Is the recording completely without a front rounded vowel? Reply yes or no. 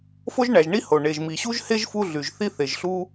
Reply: no